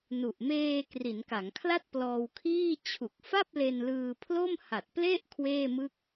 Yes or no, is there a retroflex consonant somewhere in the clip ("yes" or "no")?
no